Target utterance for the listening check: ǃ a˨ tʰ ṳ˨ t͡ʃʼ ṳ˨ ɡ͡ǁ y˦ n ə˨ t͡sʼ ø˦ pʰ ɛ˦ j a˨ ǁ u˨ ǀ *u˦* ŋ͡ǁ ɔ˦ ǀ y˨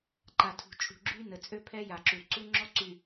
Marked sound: correct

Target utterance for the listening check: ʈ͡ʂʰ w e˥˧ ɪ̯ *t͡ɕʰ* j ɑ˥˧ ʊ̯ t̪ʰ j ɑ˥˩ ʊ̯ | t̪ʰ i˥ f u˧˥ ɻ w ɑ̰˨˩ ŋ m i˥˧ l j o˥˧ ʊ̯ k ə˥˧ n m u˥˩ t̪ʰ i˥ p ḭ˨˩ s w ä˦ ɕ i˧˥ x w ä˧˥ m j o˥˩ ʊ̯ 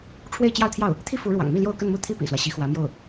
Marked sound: incorrect: t͡ɕ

